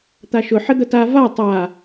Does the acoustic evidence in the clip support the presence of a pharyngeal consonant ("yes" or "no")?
yes